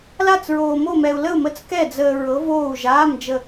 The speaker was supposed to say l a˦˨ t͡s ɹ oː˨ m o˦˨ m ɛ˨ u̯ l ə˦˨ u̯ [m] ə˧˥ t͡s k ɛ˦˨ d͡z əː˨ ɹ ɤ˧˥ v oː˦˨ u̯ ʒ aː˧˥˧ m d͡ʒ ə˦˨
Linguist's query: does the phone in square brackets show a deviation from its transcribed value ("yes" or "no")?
no